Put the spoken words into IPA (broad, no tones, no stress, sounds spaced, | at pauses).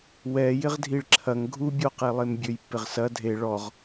w ɛ j ɪ ʁ dʱ i ɭ ǁʰ ɐ ŋ ɡʱ u bʲ o q e lˠ e m bʲ ø j pː ɪ ʁ s ɐ dʱ e ɭ ɔ ʁ